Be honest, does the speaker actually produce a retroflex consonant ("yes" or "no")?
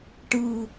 yes